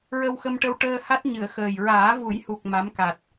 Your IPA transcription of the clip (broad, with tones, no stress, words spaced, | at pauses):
ɹə˧wxə˧mʈə˧w ʈəː˧ha˦˥t̚ ɲɨ˨˩˨ə̯ xəː˨˩j ɹaː˨˩˦vu˨˩˦jhu˨˩k̚ ma˧˥mka˨˩t̚